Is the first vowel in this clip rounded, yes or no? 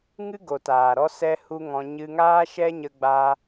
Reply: no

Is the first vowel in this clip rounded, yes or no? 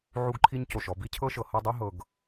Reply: yes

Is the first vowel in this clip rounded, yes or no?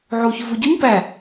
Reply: yes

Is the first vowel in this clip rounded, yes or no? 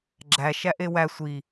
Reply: no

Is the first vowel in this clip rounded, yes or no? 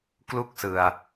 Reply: yes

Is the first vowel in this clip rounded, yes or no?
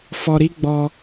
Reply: yes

